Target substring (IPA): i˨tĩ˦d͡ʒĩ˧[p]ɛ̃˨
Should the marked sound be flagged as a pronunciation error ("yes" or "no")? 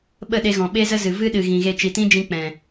yes